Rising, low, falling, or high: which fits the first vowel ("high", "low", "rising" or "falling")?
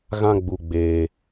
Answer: high